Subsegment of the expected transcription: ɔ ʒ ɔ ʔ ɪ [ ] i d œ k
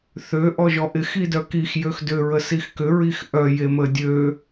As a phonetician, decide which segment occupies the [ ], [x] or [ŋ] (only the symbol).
x